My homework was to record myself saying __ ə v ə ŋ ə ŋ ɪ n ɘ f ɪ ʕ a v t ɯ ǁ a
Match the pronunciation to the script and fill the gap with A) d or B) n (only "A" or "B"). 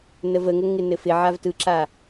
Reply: B